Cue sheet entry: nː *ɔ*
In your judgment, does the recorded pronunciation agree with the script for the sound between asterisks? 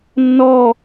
yes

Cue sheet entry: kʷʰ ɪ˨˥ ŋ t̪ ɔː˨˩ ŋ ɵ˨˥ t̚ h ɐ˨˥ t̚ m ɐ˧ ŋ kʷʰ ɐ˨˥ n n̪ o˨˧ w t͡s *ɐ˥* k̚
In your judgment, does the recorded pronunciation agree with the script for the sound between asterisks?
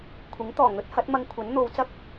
yes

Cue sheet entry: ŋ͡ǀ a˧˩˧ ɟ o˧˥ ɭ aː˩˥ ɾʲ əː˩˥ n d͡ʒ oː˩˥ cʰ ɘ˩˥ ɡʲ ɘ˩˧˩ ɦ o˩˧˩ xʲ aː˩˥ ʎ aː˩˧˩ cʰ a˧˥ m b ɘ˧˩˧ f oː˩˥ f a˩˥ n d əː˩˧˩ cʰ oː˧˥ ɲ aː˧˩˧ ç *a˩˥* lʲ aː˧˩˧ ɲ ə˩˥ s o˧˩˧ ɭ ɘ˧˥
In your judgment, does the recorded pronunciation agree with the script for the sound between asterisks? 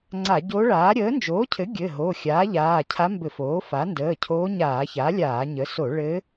yes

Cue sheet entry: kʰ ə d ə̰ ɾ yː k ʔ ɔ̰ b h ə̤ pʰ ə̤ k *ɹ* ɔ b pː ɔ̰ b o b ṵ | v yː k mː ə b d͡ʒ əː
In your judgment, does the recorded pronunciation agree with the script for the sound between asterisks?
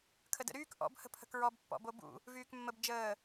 yes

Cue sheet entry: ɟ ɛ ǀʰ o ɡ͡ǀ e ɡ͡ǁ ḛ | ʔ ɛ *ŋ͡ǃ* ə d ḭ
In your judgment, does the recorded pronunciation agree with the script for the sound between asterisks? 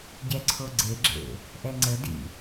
no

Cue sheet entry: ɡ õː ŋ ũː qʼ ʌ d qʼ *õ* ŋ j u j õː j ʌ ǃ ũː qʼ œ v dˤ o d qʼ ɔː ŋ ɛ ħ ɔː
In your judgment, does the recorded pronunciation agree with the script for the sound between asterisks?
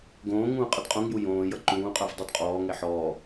yes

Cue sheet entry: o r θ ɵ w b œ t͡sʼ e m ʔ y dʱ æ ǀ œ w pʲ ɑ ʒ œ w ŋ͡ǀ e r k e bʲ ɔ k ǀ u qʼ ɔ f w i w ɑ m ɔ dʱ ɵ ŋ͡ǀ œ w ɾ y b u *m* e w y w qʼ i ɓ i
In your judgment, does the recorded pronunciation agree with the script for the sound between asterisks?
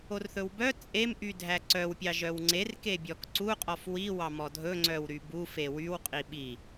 no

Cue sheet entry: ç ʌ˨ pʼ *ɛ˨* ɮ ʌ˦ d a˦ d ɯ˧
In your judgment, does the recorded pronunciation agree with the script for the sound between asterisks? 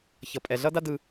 yes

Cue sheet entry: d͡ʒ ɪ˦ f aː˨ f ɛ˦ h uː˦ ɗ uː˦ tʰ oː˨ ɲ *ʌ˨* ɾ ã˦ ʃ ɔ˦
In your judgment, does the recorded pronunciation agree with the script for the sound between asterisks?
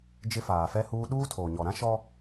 no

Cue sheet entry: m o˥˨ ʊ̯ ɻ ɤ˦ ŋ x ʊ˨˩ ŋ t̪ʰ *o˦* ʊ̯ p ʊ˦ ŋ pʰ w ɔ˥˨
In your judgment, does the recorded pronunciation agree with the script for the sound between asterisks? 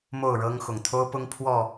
yes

